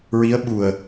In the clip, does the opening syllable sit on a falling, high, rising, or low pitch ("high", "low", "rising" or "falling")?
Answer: rising